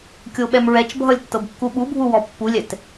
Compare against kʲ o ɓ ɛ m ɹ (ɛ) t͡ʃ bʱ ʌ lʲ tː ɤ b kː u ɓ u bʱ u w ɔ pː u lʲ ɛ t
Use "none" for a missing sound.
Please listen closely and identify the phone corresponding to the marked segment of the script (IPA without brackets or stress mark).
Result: ɛ